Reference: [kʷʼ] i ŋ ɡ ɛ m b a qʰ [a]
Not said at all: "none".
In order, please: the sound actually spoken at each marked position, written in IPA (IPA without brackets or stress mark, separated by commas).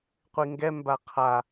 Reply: qʷ, a